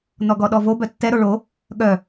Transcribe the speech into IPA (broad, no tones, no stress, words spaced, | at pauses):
n̪ɔɡɔɗɔvo bœtːɛɾo ɭo | ɠœ